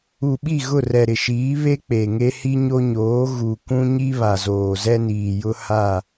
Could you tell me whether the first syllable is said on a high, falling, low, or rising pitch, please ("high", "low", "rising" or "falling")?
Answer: low